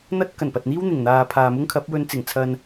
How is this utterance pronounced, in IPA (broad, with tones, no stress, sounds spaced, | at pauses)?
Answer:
n̪ ɐ˥ t̚ k ɐ˨˩ n p ɐ˨ t̚ n̪ iː˥ w n̪ ɪ˨˩ ŋ n̪ aː˨ pʰ aː˨ m ʊ˥ ŋ kʰ ɐ˨˥ p̚ w ɵ˧ n t͡s ɪ˨˩ ŋ t͡sʰ ɐ˨ n